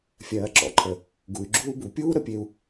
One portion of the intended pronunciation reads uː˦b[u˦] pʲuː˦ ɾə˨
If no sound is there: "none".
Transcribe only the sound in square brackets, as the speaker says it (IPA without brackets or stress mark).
u˨